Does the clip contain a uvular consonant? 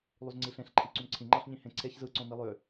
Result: no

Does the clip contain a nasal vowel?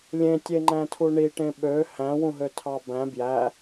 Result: yes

